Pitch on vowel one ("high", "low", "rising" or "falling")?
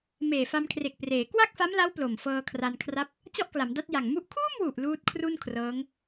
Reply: low